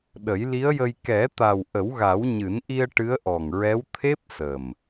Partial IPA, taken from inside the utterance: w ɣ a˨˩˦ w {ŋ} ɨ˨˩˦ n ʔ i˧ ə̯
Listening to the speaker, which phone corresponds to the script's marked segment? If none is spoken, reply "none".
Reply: ɲ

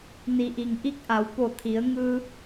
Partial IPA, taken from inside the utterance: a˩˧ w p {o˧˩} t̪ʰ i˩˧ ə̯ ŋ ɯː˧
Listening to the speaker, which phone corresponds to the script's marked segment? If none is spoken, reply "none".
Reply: o˧˩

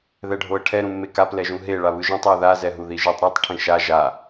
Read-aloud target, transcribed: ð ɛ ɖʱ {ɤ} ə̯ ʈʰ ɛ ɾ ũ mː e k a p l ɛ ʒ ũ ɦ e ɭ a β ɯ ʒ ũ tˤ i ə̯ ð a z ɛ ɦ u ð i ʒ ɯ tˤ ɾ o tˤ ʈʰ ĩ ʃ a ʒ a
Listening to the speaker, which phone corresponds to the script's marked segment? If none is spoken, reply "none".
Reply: o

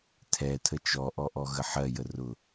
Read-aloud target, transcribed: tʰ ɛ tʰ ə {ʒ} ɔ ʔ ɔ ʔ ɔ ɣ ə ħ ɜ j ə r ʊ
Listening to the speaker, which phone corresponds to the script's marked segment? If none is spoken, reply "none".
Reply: t͡ʃ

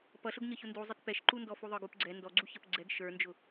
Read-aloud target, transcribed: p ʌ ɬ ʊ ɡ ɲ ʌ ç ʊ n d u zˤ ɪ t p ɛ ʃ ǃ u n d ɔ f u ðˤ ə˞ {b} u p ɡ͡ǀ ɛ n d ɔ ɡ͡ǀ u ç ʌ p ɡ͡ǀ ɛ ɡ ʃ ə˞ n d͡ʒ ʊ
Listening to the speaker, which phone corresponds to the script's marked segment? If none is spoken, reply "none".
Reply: ɡ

